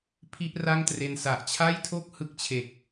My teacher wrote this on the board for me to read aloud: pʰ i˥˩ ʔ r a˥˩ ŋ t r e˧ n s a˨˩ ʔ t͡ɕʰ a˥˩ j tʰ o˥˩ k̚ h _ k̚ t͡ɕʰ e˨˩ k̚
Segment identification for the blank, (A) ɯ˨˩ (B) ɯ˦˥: B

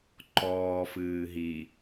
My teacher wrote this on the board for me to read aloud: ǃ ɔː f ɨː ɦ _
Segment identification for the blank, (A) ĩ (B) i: B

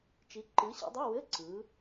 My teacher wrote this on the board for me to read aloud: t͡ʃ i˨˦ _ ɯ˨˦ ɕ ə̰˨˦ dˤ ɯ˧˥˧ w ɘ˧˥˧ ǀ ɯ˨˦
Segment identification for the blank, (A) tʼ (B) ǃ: B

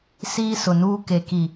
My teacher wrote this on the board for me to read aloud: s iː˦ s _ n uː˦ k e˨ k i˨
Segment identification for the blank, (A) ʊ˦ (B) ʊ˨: B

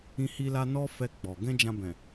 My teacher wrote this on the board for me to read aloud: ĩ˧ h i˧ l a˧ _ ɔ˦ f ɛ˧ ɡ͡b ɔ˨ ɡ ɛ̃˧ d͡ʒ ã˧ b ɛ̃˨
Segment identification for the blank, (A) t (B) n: B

